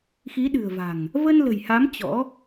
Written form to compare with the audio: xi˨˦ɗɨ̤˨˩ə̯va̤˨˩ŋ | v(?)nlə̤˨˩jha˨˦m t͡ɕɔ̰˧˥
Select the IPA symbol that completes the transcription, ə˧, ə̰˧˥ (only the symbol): ə˧